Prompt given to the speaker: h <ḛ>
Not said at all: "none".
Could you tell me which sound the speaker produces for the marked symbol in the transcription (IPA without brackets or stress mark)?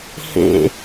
ḛ